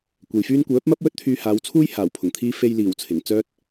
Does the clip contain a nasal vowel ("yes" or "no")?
no